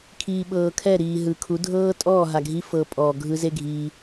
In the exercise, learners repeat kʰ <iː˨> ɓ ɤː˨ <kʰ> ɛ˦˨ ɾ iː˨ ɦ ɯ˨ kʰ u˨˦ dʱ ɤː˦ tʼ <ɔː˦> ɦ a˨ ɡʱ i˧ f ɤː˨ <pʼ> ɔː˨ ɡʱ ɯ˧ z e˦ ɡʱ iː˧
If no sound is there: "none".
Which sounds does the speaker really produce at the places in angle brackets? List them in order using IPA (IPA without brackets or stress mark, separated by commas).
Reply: iː˨, kʰ, ɔː˦˨, pʼ